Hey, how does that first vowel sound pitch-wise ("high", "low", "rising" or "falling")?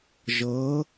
rising